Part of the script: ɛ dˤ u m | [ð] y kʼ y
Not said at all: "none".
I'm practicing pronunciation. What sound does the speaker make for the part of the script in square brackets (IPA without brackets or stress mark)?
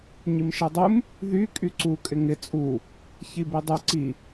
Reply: ð